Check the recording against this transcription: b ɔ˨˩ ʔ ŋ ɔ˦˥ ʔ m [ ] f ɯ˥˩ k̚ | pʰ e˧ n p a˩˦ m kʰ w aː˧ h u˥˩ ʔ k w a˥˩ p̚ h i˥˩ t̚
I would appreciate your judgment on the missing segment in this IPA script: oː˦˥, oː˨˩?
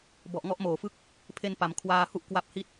oː˨˩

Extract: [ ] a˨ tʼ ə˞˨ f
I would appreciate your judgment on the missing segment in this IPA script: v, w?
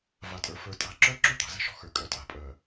v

